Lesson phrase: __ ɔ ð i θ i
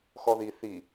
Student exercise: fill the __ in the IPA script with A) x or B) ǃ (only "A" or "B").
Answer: A